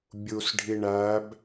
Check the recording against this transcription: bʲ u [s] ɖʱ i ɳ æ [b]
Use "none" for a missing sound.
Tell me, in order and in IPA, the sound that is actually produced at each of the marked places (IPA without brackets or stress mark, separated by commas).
s, b